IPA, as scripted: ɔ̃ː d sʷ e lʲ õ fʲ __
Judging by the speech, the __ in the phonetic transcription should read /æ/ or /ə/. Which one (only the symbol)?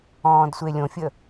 ə